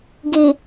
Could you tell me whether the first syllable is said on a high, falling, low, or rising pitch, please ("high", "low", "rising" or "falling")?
low